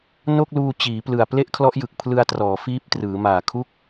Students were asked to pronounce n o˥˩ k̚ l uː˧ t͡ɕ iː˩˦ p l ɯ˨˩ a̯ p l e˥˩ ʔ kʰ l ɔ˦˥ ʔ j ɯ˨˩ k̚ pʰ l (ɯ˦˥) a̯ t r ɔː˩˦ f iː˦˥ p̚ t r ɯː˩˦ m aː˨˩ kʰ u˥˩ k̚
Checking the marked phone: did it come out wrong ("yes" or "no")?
yes